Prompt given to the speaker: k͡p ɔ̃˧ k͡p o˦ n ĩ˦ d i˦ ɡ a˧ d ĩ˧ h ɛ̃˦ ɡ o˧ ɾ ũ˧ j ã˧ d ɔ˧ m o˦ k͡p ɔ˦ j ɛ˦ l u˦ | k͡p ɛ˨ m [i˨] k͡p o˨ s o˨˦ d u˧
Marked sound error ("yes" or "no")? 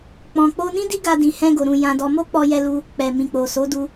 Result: yes